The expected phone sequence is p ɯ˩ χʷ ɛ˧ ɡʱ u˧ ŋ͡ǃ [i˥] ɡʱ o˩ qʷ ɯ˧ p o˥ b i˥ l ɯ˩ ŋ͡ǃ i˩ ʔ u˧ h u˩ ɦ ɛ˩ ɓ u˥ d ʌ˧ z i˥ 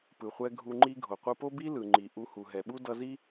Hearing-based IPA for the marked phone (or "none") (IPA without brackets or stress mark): i˥